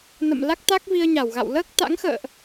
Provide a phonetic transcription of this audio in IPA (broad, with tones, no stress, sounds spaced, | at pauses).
n ə̰˧˨ m l a˦˥ k̚ t̪ a˦˥ k̚ v i˧ ə̯ ɲ a˧˩ w ɣ a̰˧˨ w l əː˦˥ k̚ t̪ a̰˧˥ ŋ x ə̰ː˧˨ ʔ